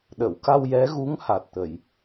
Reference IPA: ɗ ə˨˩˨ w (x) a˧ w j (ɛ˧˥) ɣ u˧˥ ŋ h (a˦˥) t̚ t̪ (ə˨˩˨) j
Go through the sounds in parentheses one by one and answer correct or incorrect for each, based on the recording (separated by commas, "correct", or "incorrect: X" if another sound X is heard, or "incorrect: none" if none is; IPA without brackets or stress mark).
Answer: incorrect: k, correct, incorrect: a˨˩, correct